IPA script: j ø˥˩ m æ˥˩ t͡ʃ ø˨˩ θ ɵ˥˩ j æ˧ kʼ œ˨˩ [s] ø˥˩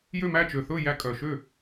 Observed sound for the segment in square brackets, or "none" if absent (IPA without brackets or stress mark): ʃ